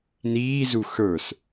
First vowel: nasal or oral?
oral